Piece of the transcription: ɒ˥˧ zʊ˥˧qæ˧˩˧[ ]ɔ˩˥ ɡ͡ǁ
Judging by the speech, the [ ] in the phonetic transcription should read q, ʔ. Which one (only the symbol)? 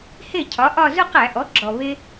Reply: ʔ